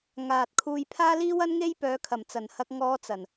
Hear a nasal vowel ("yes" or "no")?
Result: no